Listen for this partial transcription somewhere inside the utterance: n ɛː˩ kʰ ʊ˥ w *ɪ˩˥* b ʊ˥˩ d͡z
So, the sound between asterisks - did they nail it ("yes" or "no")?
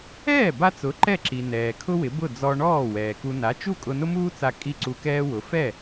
yes